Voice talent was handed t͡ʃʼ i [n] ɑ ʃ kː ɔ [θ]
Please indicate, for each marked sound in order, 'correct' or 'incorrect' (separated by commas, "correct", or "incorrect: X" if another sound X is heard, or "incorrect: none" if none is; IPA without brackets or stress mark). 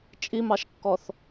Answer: incorrect: m, correct